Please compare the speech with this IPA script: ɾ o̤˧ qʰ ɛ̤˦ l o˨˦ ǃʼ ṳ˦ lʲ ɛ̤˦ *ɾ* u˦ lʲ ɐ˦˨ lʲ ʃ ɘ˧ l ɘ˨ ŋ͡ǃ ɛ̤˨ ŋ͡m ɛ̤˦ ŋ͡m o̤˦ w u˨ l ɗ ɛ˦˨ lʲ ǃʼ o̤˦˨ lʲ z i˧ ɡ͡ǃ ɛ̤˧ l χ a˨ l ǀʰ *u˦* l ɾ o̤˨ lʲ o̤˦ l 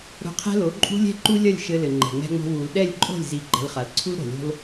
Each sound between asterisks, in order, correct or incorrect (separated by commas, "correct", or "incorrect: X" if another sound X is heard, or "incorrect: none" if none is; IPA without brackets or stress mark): incorrect: ǃ, correct